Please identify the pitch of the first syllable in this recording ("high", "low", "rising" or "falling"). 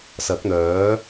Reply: rising